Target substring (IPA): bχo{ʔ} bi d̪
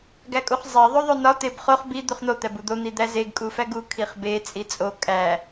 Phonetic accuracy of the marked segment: incorrect: χ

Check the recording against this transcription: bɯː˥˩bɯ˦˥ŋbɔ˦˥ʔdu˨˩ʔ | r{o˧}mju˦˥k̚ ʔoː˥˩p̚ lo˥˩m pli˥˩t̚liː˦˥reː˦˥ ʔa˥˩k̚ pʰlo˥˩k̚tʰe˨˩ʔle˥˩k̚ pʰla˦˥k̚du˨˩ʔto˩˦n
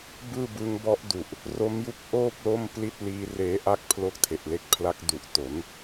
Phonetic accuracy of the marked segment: incorrect: o˦˥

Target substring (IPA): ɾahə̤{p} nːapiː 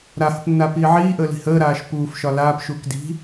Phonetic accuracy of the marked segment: correct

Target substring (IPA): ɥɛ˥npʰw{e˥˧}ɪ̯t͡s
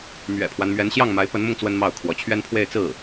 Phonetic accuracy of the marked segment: correct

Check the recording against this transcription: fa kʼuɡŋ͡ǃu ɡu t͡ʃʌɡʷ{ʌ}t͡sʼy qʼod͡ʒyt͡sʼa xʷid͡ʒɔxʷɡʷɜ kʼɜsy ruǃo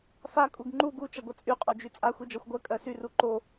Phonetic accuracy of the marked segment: correct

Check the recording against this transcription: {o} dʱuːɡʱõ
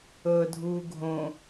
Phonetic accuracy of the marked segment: incorrect: ɤ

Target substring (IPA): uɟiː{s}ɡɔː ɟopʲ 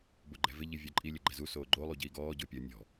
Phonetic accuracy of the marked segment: incorrect: none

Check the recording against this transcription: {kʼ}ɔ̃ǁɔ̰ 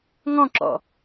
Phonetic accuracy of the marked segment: incorrect: ŋ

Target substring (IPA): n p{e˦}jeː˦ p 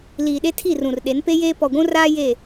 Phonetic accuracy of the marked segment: correct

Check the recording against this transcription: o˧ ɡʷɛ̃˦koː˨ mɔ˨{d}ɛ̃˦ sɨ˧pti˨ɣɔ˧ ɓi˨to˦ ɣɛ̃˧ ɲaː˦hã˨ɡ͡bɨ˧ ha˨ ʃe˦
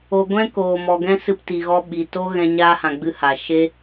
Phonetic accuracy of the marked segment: incorrect: ɡ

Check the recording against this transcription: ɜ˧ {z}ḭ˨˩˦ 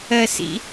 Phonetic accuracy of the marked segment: incorrect: s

